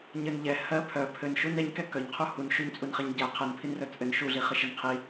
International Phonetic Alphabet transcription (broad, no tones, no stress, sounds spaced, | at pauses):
ɲ ɘ n ʎ ɛ h ɜ pʰ œ pʰ ɘ n ʃ u n ɛ ɲ k ɛ k œ ɲ qʰ u h u n ʃ u ɲ t͡sʼ u n χ ɛ ɲ ɟ ɛ qʰ ɛ n pʰ i n r œ t͡sʼ ɘ n ʃ u ɮ i χ ɘ ʃ ɘ n qʰ i